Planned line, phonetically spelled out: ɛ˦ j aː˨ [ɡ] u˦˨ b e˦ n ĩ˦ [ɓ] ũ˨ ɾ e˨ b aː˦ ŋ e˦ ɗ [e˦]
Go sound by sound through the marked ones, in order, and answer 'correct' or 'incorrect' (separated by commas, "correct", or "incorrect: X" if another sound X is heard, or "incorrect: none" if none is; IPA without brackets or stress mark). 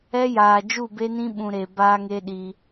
incorrect: d͡ʒ, correct, incorrect: i˦